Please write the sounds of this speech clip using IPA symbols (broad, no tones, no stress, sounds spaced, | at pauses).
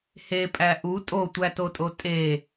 h e pʼ æ ʔ u tʼ o tʷ æ t o tʼ o tʼ e